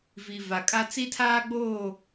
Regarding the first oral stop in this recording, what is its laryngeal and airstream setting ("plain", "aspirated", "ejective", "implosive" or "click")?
ejective